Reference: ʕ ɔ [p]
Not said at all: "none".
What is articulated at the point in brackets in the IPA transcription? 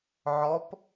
p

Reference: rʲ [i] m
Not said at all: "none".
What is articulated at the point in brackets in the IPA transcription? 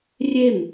e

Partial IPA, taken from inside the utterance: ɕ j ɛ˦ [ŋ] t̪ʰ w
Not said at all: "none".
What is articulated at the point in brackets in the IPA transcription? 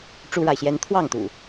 n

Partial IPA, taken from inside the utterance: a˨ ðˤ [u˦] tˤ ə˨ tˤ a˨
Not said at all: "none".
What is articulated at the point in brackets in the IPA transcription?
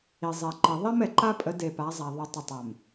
u˨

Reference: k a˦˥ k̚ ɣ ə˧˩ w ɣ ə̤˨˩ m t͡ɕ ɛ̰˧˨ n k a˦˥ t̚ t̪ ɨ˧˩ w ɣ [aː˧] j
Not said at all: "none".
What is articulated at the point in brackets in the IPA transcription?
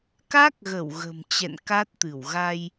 a˧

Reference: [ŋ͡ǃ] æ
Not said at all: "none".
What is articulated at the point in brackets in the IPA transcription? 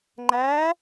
ŋ͡ǃ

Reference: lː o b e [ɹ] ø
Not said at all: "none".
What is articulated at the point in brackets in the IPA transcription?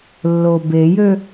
j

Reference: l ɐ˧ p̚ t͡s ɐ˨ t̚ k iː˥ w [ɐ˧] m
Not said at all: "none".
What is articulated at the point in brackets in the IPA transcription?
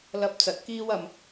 ɐ˧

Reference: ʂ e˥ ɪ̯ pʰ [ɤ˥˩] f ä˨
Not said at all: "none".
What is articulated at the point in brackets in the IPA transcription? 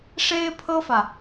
ɤ˥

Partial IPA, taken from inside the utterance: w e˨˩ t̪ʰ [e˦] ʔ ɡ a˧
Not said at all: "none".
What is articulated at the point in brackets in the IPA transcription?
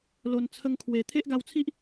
e˦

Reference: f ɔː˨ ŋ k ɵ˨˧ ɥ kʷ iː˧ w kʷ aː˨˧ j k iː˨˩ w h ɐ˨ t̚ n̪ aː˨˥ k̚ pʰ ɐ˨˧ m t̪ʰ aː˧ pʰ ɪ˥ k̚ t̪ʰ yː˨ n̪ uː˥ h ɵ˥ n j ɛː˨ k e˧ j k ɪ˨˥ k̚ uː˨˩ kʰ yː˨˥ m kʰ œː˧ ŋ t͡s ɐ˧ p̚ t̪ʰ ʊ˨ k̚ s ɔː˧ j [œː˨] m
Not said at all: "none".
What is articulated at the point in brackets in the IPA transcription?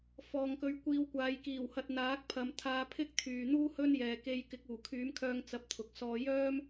œː˥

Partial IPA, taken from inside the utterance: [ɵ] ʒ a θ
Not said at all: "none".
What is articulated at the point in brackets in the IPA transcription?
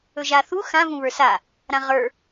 ɵ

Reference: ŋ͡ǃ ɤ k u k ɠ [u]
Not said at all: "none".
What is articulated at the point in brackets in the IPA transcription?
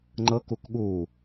u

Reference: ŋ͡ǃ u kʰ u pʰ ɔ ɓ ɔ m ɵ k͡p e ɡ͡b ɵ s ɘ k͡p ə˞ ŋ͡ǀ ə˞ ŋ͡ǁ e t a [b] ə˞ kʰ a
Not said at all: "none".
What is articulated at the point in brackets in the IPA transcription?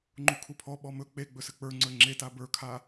b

